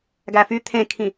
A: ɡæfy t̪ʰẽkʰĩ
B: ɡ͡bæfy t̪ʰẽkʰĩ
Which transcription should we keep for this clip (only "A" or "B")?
A